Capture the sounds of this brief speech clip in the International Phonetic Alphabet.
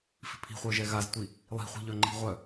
f i̤ pʰ i̤ χʷ œ ʒ ɛ ɣ a z tʷ i | lˠ i̤ χʷ i̤ ʎ œ ŋ͡ǃ i̤ ʁʷ œ

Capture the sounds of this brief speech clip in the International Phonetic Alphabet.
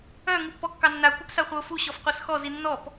œ ŋ u pː ɔ kː ɑ nː a kʷ œ p s a χʷ œ ʊ̯ f u ɕ ɔ f qʷ a s x ɔ z i nː ɔ p

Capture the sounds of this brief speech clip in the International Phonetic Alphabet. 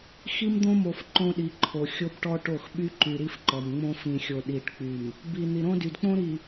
x i˦ m d̪ õ˦ m o˨ f ǃ õ˦ ɗ i˨˦ ǃʰ o˨ xʲ o˦ b ʈ ɔ˦ ʈ o˦˨ x ɓ y˦ ǃ y˨ ɾ i˦ f ǃ ɔ˨ m ŋ͡m õ˦ f ĩ˨ xʲ o˨ ɗ i˨ ʈ k͡p y˨ m | b i˨ n̪ i˨ ɾ õ˦ d y˨ d k͡p õ˦ ɾ i˨

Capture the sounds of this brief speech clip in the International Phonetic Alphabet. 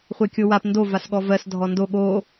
χʷ e kʲ o w a p n d o v a s ɠ ɔ v ɜ s dʱ ɔ n d o ɠ o

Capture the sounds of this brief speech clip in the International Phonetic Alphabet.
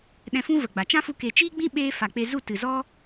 ɗ ɛ̃˧ f ũ˦ v ə˨ ɡ͡b a˨ t͡ʃ ã˦ f u˧ k e˨ t͡ʃ iː˦ ɡ͡b ĩ˦ ɓ eː˧ f a˨ k͡p e˧ z u˦˨ t ɨ˨ z ɔ˦

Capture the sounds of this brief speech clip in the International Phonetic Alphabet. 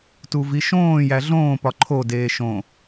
t u v i ʃ õː j æ ɮ õː p ɒ ǃʰ o d eː ʃ õ

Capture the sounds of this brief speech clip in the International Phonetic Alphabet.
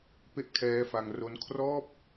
p e˥˩ ʔ kʰ ɛː˦˥ f a˧ ŋ r o˦˥ n kʰ r ɔː˥˩ p̚

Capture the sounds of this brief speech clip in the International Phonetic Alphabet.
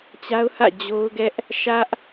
t͡ɕ a˦ ʊ̯ h ä̰˦˨ d͡ʑ o˦ ʊ̯ ɡ ɛ˦ ʔ | ʃ ä˦ ʔ

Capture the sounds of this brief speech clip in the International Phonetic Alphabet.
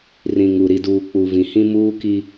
r ĩ˨ ŋ u˨ ɾ i˨ d uː˨ k͡p u˨ v ĩ˨ h ĩ˦ m uː˦ k i˦

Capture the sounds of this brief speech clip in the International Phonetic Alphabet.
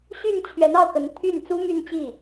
ɕ y˥˩ n t͡ɕʰ ɥ ɛ˧˥ n ɑ˥˩ ʊ̯ k ə˧˥ n t̪ʰ y˥˩ n t͡s u˥ m y˥˧ n t͡ɕ i˥˩

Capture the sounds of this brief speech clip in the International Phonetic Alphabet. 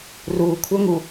r u kʷʰ œ ŋ u

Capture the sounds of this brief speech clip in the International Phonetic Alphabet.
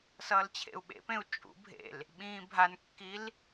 s ʌː l t͡ɕʰ ḛ u̯ ɓ ḛ p ẽ u̯ t͡ʃʼ ṵ bʱ ḛ l | ɓ ĩː bʱ a n kː i l

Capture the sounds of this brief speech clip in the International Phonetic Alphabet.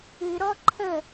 ɨ ɾ ɔ ǃʰ ə

